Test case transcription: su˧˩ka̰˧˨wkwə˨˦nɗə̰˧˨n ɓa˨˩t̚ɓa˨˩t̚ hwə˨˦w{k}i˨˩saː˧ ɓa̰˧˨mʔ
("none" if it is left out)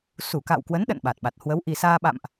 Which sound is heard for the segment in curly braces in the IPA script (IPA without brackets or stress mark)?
ʔ